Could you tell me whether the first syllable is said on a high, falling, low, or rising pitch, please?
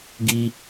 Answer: high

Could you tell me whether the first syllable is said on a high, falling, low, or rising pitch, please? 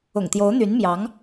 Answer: low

